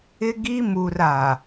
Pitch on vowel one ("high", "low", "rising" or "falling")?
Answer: high